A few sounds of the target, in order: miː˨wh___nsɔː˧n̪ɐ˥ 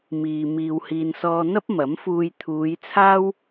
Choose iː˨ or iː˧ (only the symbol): iː˨